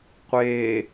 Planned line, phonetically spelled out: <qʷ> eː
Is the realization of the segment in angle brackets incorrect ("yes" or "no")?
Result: no